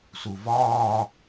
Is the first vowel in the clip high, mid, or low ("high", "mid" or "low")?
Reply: high